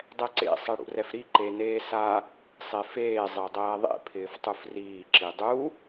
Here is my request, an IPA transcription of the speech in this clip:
dˤɛǀḛ sˤɛɽṵrɛfɾi ǃeneːsa | sˤefeː zˤedˤɛːðˤḛ pʰɪːftˤufriː ǁidˤu

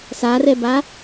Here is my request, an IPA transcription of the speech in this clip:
sarɛba

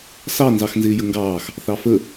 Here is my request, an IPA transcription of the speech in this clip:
sɑ nzɑxnzɪːjəŋɡɑːx | θɑfə

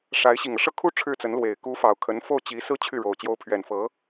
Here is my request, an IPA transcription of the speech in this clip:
ʂa˧˥ɪ̯ ɕi˨˩ŋɤ˦ʂɤ˥˩kʰu˥ ʈ͡ʂʰɻ̩˥t͡sə˧˥nlwe˨˩ɪ̯ ku˧˥fɑ˨˩ʊ̯ kʰə˧˥nfo˥˩ʊ̯t͡ɕi˧˥sɹ̩˥ t͡ɕʰy˥˩ɻo˨˩ʊ̯ t͡ɕjo˧˥ʊ̯pʰɥɛ˨˩nfɤ˧˥

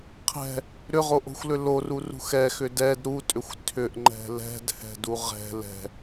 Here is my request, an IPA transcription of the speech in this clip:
qʰɛ̤ | ɾʏʁoʔo̤xʷlʏ lorurṳx ɛxʏ dɛd ɾutʼʏxʷ tʰʏʔŋ͡ǃɛ̤ lɛ̤dhɛ̤du ʁɛ̤ lɛ̤

